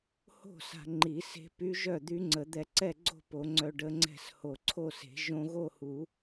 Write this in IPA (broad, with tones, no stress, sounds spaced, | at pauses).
h o̤˥˩ s a̤˧ ŋ͡ǃ i˨˩˦ s e̤˧˥ p y˧˥ ʒ œ˥˩ d̪ y˧˥ ŋ͡ǀ ə˨˩˦ d̪ ɛ˧ ǀ ɛ˥˩ ɡ͡ǀ o̤˥˧ p o˨˩˦ ŋ͡ǀ œ˧ ɖ ə˧˥ ŋ͡ǀ ɛ̤˥˩ s h o˨˩ ǀʰ o˥˩ s e̤˨˩˦ ʒ õ˧ ɣ o˥˧ h u˨˩˦